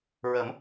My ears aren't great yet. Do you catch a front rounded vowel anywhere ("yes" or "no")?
no